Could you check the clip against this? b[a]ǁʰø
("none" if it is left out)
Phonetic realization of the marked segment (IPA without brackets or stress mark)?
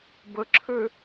ə